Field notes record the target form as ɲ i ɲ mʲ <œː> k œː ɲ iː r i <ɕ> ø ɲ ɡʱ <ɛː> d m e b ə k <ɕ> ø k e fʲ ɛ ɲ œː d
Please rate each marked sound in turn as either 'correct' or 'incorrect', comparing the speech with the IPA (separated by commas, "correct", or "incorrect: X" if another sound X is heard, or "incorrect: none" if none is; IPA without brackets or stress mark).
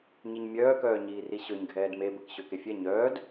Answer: correct, correct, correct, correct